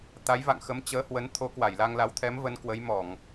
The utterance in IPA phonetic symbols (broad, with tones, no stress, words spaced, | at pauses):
t̪a˨˦jva̰˧˨ŋxə˨˦m t͡ɕəː˨˦hwə˨˦n t̪ʰo˨˦kwa˧˩jla˧ŋla˨˦w t̪ʰɛ˨˦mvə˨˦n kwə˨˦jmɔ˧˩˨ŋ